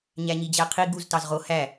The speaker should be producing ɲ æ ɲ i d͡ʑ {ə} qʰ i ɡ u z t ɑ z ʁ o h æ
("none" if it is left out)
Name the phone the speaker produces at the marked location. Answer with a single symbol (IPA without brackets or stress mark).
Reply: æ